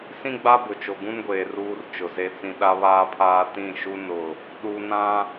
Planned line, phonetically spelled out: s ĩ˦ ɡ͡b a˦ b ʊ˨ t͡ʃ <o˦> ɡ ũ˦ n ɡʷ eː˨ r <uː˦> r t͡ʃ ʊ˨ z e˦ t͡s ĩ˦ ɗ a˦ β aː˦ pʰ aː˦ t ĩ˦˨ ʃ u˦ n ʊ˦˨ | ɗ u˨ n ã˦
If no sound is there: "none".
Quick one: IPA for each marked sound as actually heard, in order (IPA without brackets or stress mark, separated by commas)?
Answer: o˨, uː˦